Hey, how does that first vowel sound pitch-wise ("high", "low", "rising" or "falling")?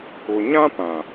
low